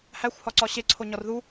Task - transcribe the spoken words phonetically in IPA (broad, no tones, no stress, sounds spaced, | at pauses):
h æ xʷ h ɒ ǀ ɒ ɕ e ǀʰ o ɲ ɒ r ð u